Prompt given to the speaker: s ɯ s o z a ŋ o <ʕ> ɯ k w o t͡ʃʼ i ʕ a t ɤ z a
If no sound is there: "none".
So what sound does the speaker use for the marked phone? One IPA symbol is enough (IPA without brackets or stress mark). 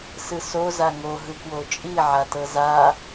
ɦ